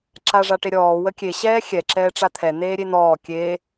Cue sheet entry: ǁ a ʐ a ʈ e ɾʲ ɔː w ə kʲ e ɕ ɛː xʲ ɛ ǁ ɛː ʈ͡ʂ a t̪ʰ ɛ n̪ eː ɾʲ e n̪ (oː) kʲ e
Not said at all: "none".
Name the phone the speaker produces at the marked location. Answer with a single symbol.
ɔː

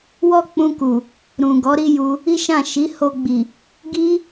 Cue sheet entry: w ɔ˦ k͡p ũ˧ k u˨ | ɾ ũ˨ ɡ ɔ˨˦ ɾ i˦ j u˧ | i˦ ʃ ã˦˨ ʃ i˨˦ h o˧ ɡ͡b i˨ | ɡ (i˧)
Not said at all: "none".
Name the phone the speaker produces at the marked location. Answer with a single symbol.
i˦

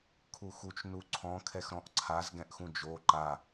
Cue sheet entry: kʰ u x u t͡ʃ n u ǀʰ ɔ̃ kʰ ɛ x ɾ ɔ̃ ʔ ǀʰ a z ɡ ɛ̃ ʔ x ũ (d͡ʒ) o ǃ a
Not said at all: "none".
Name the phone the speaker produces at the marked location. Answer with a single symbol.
d͡ʒ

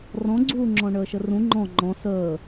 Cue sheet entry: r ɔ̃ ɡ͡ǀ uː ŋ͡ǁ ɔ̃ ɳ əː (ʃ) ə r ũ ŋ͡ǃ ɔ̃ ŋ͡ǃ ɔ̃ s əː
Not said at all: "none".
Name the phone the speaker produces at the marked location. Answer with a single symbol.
ʃ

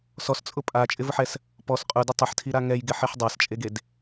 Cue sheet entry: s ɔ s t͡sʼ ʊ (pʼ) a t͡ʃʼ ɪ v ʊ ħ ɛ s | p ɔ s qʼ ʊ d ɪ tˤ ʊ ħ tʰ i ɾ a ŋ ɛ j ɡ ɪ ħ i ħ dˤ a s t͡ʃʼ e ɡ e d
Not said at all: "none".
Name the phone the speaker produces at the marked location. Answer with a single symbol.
pʼ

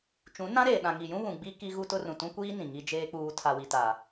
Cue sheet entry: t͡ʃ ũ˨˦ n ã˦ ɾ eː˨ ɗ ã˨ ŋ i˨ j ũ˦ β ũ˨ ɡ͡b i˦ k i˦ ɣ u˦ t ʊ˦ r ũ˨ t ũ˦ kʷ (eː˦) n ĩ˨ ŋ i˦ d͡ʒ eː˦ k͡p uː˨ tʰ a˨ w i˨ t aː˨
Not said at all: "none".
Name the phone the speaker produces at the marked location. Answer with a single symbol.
iː˦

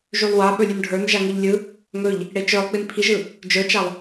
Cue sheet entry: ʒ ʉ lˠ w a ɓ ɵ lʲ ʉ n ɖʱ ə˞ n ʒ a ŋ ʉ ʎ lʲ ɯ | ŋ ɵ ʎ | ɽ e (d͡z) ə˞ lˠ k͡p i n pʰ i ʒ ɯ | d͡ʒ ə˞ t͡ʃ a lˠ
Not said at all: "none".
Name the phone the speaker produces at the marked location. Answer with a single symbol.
t͡ʃ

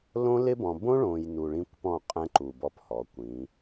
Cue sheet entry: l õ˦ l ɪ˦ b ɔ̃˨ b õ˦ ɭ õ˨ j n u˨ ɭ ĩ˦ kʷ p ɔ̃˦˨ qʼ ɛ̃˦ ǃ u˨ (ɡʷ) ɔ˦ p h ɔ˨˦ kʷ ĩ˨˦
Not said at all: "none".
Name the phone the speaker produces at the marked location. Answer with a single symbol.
b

